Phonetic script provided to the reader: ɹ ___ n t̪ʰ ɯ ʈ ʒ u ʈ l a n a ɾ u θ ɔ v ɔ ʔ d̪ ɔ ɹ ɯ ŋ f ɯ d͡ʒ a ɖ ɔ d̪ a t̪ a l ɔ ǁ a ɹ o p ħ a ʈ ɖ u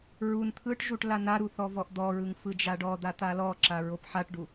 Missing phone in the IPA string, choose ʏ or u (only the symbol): u